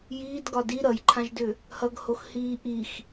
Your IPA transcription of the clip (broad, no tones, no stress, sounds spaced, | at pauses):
j iː d ɡ ɒ d i ɾ ʌ j ǃʰ ã ʒ d ʏ | h ʌ ɡ h o x h iː ʔ i x